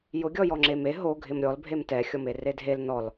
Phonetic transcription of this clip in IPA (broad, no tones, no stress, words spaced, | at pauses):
jʊ ɡʲɔjɔŋ͡ǁeme ɦoɡʱɪm ɾʲɔlbʱem tɛxʲɔme redʱel nɔl